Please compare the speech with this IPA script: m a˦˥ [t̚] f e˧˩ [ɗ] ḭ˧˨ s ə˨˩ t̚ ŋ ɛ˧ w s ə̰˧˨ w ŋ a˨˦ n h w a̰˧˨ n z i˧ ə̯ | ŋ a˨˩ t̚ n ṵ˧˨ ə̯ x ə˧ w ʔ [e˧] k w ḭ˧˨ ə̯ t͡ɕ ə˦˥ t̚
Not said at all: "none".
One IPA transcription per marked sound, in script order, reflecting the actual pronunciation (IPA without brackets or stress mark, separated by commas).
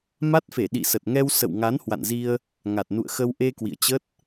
t̚, ɗ, e˧